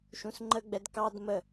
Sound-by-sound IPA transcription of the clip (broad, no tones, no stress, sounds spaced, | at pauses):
ʃ ũ s ŋ͡ǃ ə ɡ͡b ɛ d k ɑ d m ə